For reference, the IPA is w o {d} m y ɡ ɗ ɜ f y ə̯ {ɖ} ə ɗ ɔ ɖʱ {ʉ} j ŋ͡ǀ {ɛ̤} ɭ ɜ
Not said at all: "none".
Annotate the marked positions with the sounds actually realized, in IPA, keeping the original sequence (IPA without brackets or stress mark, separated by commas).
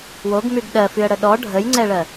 ɡ, ɽ, ə, ɛ